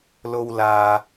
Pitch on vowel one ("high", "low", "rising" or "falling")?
low